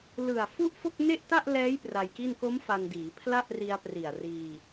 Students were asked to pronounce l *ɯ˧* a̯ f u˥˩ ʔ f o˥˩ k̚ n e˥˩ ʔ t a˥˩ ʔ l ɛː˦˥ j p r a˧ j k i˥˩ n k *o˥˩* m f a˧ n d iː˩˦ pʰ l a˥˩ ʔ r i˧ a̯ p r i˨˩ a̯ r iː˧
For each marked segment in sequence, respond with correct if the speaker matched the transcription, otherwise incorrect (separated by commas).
incorrect, incorrect